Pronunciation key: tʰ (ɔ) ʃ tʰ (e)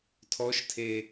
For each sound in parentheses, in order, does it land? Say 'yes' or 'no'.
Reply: yes, yes

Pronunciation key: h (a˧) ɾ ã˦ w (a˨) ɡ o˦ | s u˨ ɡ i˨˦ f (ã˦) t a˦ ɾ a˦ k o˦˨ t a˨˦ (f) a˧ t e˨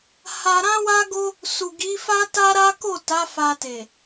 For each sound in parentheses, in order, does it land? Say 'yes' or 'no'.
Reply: yes, no, no, yes

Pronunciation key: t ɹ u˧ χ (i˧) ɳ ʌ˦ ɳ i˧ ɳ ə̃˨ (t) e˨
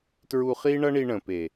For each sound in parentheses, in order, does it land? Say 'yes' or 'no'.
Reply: no, no

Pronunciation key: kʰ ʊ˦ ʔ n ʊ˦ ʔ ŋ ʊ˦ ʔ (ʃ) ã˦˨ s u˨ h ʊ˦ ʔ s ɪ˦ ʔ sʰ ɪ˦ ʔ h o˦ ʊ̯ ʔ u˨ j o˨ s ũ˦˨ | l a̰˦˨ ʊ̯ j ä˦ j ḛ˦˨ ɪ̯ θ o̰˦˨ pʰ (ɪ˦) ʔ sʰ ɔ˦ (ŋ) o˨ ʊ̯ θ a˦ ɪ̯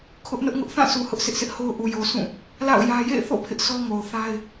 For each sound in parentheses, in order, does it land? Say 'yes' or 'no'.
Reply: no, yes, yes

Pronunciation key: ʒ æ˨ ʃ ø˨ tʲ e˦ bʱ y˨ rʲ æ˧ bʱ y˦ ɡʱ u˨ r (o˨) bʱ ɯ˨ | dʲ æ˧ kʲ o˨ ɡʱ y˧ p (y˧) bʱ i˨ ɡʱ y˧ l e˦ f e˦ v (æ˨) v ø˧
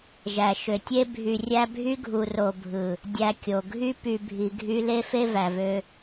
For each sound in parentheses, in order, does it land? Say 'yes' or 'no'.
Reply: yes, no, yes

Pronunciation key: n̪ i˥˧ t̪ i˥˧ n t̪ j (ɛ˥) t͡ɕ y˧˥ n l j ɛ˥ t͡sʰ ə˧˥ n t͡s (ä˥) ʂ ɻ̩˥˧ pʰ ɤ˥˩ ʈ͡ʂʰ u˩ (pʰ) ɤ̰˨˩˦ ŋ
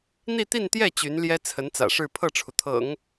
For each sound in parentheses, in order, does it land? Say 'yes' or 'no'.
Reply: no, no, no

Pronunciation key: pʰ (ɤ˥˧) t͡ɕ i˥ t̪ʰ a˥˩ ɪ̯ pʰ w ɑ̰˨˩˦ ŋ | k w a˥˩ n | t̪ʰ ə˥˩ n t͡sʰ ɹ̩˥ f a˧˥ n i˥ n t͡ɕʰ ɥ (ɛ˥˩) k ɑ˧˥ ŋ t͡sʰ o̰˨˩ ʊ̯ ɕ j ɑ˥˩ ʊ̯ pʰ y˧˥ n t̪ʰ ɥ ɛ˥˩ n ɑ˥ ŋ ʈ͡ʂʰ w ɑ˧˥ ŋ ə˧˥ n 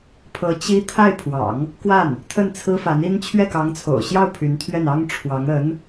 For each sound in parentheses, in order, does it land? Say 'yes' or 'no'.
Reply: no, yes

